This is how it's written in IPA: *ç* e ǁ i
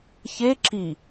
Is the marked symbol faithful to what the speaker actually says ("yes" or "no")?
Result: yes